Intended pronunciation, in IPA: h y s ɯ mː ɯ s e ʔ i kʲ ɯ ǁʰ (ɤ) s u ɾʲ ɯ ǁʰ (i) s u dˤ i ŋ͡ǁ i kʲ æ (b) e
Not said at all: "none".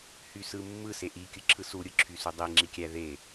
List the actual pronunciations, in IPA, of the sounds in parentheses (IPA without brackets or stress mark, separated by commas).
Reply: ɯ, y, ð